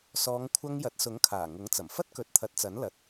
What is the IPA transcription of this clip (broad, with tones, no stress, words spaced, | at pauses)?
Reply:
sɔː˨˧ŋkʷʰɐ˧ŋ jɐ˨˥t̚sʊ˨˥ŋkʰaː˨˩ ŋʊ˨˥ŋt͡sɐ˨˩mfɐ˥t̚ kɵ˨˥t̚t̪ʰɐ˨˥t̚t͡sɐ˨˥nlɐ˨˥t̚